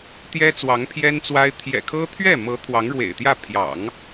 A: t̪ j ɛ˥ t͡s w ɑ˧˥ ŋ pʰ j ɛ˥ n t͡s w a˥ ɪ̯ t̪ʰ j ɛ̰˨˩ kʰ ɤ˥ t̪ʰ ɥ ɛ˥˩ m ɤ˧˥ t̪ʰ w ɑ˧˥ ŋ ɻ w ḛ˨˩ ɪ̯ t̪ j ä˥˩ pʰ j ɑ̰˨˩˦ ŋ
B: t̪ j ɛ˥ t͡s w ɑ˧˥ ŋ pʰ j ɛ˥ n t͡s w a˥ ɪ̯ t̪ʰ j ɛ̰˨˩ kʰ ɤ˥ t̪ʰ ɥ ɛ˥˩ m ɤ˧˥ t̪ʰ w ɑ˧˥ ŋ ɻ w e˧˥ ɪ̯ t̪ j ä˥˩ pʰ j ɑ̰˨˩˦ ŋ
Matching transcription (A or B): A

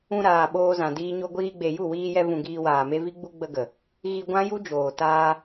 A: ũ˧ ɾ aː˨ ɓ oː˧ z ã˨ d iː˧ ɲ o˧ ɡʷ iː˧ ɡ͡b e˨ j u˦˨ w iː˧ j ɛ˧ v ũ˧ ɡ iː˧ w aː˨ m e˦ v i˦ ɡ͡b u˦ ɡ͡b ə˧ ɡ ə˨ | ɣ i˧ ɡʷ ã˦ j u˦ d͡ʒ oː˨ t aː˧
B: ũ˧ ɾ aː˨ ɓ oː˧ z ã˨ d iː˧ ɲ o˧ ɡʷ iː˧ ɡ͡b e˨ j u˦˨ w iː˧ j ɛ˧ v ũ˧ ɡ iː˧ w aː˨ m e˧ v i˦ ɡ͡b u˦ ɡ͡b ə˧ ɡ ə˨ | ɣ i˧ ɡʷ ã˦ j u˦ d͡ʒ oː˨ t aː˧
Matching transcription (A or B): A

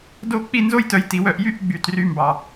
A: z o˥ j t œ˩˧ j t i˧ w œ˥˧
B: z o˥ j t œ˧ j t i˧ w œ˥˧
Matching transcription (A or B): B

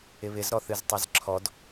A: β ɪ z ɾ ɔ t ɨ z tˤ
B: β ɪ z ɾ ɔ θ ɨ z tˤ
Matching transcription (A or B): B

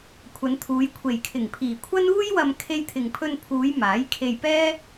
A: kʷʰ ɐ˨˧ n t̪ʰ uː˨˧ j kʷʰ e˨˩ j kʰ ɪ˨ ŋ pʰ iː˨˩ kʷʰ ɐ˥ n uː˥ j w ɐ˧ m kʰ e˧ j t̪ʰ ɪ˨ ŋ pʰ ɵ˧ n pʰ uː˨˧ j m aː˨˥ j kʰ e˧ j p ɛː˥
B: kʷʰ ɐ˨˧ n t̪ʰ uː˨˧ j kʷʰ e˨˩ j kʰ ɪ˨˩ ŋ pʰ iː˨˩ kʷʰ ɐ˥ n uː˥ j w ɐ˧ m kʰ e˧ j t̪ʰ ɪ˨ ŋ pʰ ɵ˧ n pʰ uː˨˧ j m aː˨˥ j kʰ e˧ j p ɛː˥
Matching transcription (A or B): B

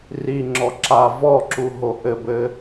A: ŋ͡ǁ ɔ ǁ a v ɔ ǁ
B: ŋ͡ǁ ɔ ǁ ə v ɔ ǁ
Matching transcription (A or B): A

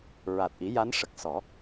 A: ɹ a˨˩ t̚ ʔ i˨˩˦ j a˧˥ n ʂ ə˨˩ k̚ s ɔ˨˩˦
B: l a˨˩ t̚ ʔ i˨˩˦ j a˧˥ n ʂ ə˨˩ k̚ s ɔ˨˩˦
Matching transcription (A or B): A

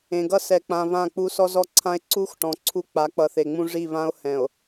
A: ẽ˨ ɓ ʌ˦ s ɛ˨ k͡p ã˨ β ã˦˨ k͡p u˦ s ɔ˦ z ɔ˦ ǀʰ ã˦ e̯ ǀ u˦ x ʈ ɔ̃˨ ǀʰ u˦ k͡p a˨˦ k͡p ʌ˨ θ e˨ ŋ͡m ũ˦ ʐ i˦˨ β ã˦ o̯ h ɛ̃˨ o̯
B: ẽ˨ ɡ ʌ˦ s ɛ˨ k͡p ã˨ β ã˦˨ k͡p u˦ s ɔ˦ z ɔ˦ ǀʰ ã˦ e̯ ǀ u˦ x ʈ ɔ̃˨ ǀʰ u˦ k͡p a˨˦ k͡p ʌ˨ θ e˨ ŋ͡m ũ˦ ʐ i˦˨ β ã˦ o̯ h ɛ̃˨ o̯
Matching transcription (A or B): B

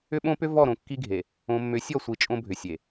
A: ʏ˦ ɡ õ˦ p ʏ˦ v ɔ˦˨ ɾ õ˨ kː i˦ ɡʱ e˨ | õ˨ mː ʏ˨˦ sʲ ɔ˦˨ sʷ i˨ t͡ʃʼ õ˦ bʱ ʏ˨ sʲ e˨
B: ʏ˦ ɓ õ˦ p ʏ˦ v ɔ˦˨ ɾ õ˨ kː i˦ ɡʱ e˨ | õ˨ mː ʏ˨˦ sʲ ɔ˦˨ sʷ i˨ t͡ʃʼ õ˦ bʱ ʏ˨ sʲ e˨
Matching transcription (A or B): B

